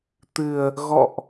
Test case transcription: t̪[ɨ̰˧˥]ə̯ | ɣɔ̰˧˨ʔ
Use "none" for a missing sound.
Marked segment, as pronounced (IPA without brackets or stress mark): ɨ˨˩